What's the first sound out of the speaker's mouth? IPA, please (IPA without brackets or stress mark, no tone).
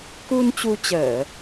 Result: k